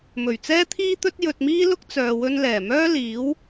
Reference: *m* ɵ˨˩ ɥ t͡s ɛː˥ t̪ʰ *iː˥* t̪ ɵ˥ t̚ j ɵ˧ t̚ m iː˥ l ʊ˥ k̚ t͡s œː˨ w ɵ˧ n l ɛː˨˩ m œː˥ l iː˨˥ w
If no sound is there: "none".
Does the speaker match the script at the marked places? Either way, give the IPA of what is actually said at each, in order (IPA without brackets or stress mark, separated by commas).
m, iː˥